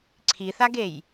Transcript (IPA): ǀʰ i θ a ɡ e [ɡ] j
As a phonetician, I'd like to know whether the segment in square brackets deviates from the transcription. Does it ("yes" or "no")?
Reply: yes